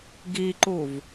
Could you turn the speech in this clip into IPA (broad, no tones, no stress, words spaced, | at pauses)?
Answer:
ɡiǃuv